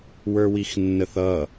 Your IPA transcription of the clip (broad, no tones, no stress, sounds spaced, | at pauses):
w ə˞ w i x nː ə θ ʌ